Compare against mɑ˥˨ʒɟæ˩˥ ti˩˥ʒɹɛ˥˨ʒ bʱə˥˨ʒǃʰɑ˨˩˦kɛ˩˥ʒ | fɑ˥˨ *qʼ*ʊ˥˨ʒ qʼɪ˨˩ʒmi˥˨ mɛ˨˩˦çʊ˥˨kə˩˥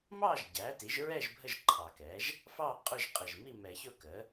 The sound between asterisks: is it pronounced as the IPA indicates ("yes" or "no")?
yes